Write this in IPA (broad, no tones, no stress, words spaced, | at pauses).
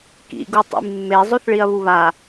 kḭɡu tˤḭmːe zˤoθɭiɐ̯βuβa